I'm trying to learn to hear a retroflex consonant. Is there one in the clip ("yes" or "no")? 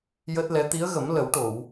yes